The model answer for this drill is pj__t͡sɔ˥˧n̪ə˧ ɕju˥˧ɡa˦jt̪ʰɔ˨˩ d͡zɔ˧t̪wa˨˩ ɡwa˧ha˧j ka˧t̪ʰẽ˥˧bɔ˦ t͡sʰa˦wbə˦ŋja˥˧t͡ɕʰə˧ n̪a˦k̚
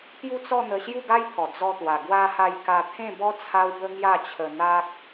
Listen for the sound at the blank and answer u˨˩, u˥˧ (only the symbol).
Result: u˥˧